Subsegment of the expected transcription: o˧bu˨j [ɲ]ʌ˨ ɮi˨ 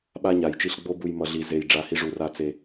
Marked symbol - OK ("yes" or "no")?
no